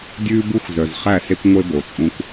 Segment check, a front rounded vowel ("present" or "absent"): present